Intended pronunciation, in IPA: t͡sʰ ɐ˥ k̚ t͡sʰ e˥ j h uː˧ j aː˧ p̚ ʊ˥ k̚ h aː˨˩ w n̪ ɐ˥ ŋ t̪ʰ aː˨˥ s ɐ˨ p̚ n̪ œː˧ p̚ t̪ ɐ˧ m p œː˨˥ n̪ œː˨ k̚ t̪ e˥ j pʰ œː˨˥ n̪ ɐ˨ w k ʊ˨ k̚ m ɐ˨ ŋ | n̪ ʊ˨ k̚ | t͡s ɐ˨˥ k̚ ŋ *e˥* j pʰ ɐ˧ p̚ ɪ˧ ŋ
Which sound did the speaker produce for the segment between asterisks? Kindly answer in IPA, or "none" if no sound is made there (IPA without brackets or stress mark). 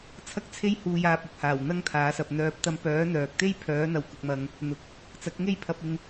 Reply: e˥